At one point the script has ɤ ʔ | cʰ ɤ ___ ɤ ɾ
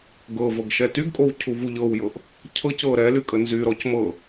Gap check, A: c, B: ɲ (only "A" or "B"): A